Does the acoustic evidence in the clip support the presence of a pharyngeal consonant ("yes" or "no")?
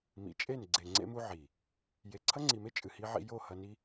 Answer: yes